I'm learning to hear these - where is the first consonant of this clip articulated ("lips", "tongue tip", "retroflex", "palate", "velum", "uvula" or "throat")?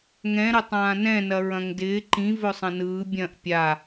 velum